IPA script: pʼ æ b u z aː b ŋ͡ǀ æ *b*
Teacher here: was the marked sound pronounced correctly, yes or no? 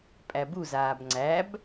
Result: yes